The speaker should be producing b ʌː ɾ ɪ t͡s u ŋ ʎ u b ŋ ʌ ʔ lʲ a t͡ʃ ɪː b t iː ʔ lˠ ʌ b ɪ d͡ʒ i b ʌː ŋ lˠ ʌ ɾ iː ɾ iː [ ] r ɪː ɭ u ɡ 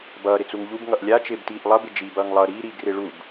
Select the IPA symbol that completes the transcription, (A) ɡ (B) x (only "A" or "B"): A